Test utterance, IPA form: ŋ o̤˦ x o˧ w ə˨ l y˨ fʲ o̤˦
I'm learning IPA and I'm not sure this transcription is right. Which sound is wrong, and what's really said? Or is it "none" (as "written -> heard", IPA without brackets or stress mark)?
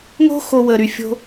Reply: l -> ɾ